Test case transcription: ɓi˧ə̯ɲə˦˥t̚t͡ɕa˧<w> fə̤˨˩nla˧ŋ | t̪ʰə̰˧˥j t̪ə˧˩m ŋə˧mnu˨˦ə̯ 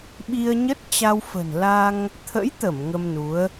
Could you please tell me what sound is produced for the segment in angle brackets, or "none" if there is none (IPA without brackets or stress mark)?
w